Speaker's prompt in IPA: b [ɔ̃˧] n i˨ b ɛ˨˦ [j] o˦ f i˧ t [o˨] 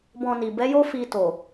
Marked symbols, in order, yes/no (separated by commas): yes, yes, yes